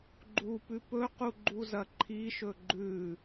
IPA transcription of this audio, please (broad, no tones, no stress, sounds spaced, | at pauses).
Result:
ɡ͡ǃ u p ʉ p ɵ q u ɡ͡ǃ u z ɐ ǃʰ i ʃ ɵ ɡ͡ǃ ʉ